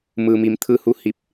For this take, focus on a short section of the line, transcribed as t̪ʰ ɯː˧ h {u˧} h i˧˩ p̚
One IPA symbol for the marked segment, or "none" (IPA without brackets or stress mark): u˧